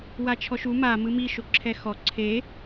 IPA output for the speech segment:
w a t͡ʃʰ ɔ ʃ u m a m ɯ m i ʃ o ǁʰ ɛ x ɔ ǀʰ e

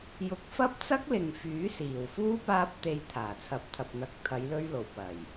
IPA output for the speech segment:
j ʊ˨˥ k̚ f ɐ˥ p̚ t͡s ɐ˥ k̚ l ɪ˨ ŋ f yː˨˥ s iː˨˩ w f uː˥ p aː˧ p̚ t̪ e˨ j t̪ʰ aː˨˩ t͡sʰ ɐ˨˥ p̚ t̪ʰ ɐ˨ p̚ n̪ ɐ˨ k̚ t̪ʰ ɐ˨˧ j l ɵ˧ ɥ l o˨˩ w p ɐ˨˩ j

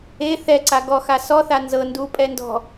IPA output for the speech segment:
e θ ɛ ǀ a ɡ ɔ x a s ɔ θ a n z ɤ n d u pʼ ɛ n d ɔ̤

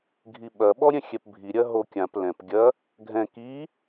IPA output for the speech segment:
ɡʱ i ɓ ɐ ɓ ɔ ɾʲ ɛ̃ xʲ ɛ p bʱ i ɾʲ ɐ ɦ o kʲ ã p l ɛ̃ p ɡʲ ɐ | ɡʱ ɛ̃ k i

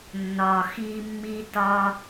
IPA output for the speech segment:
nː ɒ˨ x i˦ mː i˥ t ɒ˥

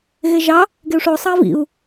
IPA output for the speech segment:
ɣ e ʒ ɑ | ɡ e u̯ ʂ o sˤ ɑ i̯ v ḭ u̯

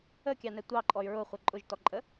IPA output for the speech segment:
ə kʲ ɑ n ɛ tʷ ɑ ǃʼ ɔ y̯ ɹ ʊ χʷ ə ǃʼ ʊ ʒ t ɔ ǃʼ ə

